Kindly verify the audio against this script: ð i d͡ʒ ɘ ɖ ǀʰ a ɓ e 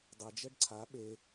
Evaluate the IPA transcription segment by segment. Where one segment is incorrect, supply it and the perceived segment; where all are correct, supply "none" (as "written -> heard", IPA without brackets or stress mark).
ð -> dˤ